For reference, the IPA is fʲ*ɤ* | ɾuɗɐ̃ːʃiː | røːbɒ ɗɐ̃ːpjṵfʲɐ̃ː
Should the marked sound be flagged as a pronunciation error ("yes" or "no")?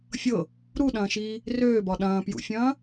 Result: no